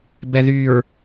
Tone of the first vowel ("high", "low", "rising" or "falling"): low